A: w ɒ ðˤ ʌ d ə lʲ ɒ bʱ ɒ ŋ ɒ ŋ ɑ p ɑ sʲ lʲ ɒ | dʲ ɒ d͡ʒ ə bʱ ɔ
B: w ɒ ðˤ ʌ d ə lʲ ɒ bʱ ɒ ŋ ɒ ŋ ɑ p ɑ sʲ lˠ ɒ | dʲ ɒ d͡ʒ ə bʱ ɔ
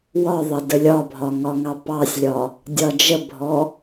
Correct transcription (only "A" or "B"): A